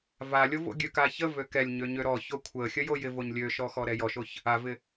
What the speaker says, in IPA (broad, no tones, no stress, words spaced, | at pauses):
valʲo vo̰ɡʲøkaçə vøkɛlʲɲø ɲøɾɔço kʷʰə xʲəjojɪvoɲ lʲøʃɔxɔ ɾɛjɔʃoç | avɪ